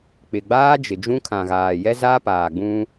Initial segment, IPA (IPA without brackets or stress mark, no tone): k͡p